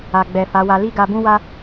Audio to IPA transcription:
a˨ ɡ͡b ɛ˨ f a˨˦ w a˧ l i˦ ɡ a˧ b ũ˦ w a˦

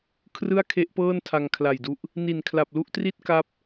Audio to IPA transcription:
kʰ r ɯ˥˩ a̯ kʰ e˦˥ ʔ p ɤː˥˩ n tʰ a˧ ŋ kʰ l a˨˩ j d u˦˥ ʔ | n i˨˩ n kʰ l a˨˩ p̚ l u˥˩ ʔ t r i˥˩ t̚ k a˦˥ p̚

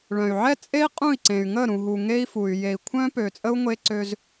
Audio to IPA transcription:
ɭ œ̃˨ y̯ ʕ ɛ˦ t͡sʼ e˦ i̯ qʼ ũ˦˨ i̯ ǀ ẽ˨ y̯ ŋ ə˦˨ ɾ ũ˨ ɦ u˨ ŋ e˦ i̯ f u˨ y̯ j e˨ i̯ kʷʰ œ̃˦ p ø˨ t͡sʼ ə˦ u̯ ŋʷ e˦ ǀ ø˦ z

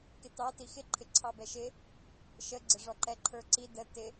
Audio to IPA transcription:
k ɪ t ɑ t i x ɪ ǃʰ ɪ ǀʰ ɑ b ɛ ʃ ɪ | ʃ ə ɡ͡ǀ ɪ ʐ ɔ ǃ ɛ ǃʰ ə˞ ǀ i d ə t ɪ

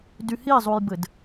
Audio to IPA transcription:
d y h i zˤ u j b ɘ d

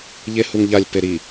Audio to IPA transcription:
ʎ e h u ŋ ʎ a lʲ p e ɾ i

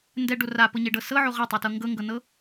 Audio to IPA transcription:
n d ɛ ɖ o r a p ɤ ɲ e ɖ ɤ s ɤ ʕ o ʁ ɤ tˤ e t ɤ ŋ ɡ ɤ ŋ ɡ ɤ n ɤ

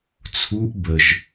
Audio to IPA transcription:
t͡sʰ u ʔ b ə ʒ

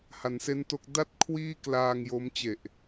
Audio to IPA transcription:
h a˩˦ n s e˦˥ n t o˦˥ k̚ d a˥˩ t̚ kʰ w iː˥˩ k l aː˧ ŋ j o˦˥ m t͡ɕ e˨˩ ʔ

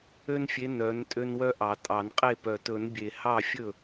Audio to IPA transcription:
ø˦ n fʲ e˨˦ n œ˨˦ n tʼ ø˦ n w œ˦ ʔ ɑ˨˩˦ tʼ ɑ˨˩˦ n qʼ e˥˩ p œ˨˩ t ɵ˨˩˦ n bʲ e˨˩ h ɑ˥˩ fʲ ɵ˥˩

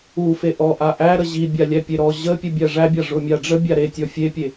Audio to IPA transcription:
u f e ʔ ɔ ʔ a ʔ æ ɾ ə ʑ i bʲ a lʲ æ pʲ e ɾ ɔ ʑ ə pʲ u bʲ æ ʐ æ bʲ a ʐ ʊ mʲ a ɖ͡ʐ ə bʲ a ɾ e tʲ ɔ fʲ e pʲ e

